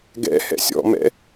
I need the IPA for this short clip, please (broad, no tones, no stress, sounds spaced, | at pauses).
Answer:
ɡ ɛ̰ h ɛ̰ sʲ ɔ̰ m ɛ̰